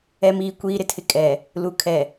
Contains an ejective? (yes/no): yes